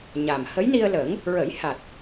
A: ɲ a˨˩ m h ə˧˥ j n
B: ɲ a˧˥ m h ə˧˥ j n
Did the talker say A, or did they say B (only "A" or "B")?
A